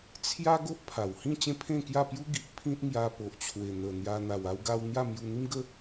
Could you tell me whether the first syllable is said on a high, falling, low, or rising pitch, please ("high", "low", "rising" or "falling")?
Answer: high